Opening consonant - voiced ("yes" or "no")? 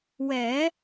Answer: yes